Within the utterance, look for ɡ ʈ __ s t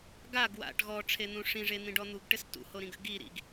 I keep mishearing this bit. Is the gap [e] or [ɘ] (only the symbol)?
ɘ